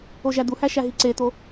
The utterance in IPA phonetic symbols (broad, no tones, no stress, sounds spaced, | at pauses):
o ʒ æ d̪ u h æ ʃ æ ɦ i ǀ e t̪ o